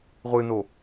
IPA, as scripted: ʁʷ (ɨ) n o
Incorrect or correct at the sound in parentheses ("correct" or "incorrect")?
correct